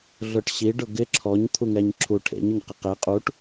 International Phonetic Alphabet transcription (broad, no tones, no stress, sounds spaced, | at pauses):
ɮ ʊ ʈ ɕ i ɖ ʊ ɡ ɪ ǁʰ ɔ ɲ t̪ʰ u ŋ ɛ ɲ ǁʰ u ʈʰ ḛ ɲ ʊ ɲ q ɪ q ɛ qʼ u ʈ